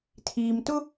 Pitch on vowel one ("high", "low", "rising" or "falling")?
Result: low